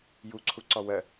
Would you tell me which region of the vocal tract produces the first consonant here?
palate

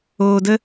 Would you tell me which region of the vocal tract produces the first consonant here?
tongue tip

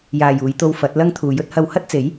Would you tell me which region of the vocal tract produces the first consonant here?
palate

